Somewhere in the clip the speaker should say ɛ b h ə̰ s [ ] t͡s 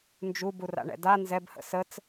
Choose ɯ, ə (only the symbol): ə